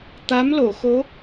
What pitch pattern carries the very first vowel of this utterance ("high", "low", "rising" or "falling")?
rising